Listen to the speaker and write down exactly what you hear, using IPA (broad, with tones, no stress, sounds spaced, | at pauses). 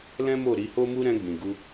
l ɛ̃˦ m o˦˨ ɾ i˧ h o˦ m u˦ ɾ ɛ̃˧ ɡ͡b ĩ˨ ɡ u˧